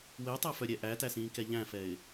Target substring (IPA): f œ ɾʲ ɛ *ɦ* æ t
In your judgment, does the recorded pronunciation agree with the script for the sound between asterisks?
no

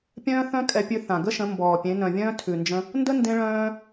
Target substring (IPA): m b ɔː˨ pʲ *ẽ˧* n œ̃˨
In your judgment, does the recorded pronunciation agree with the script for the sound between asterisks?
no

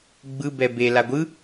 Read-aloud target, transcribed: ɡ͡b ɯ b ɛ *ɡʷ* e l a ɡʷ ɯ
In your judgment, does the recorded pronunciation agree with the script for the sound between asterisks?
no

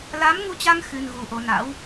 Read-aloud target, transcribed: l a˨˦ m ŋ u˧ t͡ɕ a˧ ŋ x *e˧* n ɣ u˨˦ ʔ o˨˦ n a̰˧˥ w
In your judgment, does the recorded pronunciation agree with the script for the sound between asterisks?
no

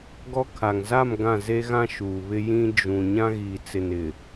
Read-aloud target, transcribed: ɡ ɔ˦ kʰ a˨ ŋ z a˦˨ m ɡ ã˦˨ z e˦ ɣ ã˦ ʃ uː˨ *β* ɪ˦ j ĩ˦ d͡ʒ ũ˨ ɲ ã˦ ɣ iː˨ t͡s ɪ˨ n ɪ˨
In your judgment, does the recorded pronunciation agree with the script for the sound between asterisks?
yes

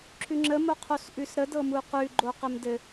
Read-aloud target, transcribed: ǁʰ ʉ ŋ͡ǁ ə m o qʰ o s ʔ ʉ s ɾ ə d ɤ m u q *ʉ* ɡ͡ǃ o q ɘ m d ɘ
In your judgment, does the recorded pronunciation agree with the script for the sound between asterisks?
yes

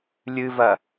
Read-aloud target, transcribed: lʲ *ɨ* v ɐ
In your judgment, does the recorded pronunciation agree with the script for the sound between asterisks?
yes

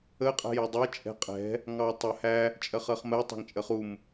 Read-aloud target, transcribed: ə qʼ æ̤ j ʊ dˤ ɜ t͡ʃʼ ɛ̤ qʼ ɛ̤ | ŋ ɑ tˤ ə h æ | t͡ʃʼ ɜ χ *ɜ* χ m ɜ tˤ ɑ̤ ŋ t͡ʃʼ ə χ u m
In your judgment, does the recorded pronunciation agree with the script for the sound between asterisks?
yes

